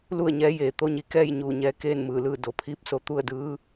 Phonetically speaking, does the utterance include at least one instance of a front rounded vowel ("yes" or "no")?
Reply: no